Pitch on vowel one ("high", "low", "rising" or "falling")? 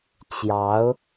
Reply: rising